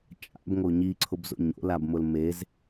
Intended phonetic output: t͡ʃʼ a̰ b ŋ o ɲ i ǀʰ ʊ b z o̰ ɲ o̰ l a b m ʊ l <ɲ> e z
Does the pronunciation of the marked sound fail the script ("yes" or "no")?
yes